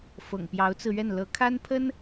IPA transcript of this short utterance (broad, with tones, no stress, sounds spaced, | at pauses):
f ɤ̰˨˩ ŋ p j ɑ˧˥ ʊ̯ t͡s ɹ̩˧ ɥ ɛ˥˩ n l ɤ˧˥ kʰ a˥ n pʰ ə˥ n